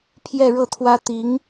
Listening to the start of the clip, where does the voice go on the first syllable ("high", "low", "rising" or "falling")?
falling